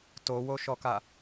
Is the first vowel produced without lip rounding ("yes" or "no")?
no